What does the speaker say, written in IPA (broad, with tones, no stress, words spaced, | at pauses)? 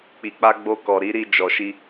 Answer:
k͡pi˨k͡pa˧ ɡ͡bo˧kɔ˨ɾi˨˦ɾi˧ d͡ʒɔ˨ʃi˧